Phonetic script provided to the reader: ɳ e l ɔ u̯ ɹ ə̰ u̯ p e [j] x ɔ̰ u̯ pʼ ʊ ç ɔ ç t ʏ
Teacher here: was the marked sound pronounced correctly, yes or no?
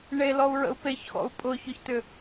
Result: no